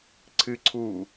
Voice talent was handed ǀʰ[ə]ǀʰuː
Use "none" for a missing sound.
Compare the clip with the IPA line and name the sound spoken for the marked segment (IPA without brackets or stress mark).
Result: ɨ